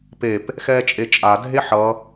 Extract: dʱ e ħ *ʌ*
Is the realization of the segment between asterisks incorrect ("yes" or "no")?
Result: no